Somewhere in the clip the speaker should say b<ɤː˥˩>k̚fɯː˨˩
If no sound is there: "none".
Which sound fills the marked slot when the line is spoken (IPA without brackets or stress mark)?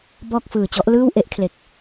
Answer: ɔː˥˩